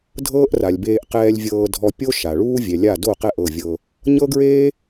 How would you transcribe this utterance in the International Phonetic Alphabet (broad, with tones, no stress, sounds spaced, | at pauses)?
dʱ ɤː˦ ʔ r a˨ lʲ b eː˧ ʔ q ɛː˧ lʲ vʲ ɤː˧ dʱ ɔ˧ pʲ o˦ ʃ a˨ ɭ uː˦ vʲ ɛ˨ lʲ a˦˨ d o˦˨ q ɛ˦˨ ʔ ɤ˦˨ vʲ ɤ˧ | ɲ ɤ˦ ɡ ɹ eː˦